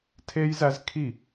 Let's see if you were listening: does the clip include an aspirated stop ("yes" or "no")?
yes